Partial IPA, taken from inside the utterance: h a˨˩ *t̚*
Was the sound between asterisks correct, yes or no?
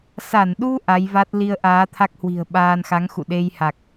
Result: no